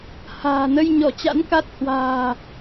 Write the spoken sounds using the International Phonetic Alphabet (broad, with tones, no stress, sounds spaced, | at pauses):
h a̤ː˨˩ n ə˧ j ɲ ɔ˧˩ t͡ɕ a̰˧˥ n k a˦˥ t̚ h w a̤ː˨˩